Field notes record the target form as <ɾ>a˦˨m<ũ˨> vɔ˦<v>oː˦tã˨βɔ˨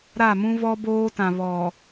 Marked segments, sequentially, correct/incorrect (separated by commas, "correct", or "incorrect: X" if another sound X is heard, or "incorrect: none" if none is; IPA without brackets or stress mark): correct, incorrect: ũ˦, incorrect: b